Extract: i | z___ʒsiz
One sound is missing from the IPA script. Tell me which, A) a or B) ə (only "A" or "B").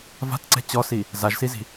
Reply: A